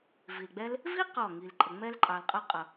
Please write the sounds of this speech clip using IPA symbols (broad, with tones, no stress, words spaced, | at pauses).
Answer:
vi˨lɡ͡bɛ˦l | vi˦ qɔ˦˨ŋi˨lǃʼə˨ ŋ͡mɛ˦l ǃʼɑ˨lqʼʌ˦ qʼʌ˨